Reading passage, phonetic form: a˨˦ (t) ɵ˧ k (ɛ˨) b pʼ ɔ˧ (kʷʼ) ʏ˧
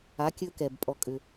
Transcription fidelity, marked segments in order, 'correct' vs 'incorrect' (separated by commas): incorrect, correct, incorrect